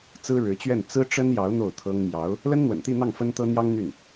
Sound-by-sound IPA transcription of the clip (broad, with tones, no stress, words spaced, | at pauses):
t͡sɹ̩˥ɻɻ̩˧˥t͡ɕɥɛ˥˩n t͡sɹ̩˥ʈ͡ʂə˥njɑ˧˥ʊ̯ n̪o˥˩ʊ̯t̪ʰɤ˥ŋ mjɑ˧˥ʊ̯ | lə˥nn̪wə̰˨˩nt̪i˥˧n̪ɑ˥˩ŋ fə˥nt̪ɤ˥n̪jɑ˥ŋ n̪y˥˩n